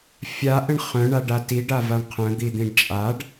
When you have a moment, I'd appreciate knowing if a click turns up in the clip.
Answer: no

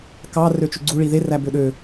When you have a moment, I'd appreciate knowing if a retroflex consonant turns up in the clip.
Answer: yes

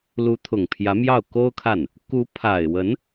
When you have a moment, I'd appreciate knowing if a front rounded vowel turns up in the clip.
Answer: no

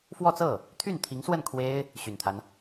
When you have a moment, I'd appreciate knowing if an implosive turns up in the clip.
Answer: no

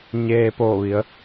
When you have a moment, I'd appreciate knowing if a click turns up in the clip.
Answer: no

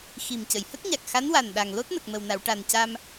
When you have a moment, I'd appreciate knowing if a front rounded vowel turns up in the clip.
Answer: no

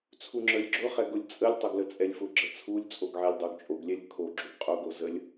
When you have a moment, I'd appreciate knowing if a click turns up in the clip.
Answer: yes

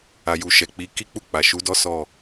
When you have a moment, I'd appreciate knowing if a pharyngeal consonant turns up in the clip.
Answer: no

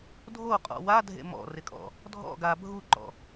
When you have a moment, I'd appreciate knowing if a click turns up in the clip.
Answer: yes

